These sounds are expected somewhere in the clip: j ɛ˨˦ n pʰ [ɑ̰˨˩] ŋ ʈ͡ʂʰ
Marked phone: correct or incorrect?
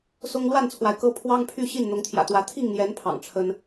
correct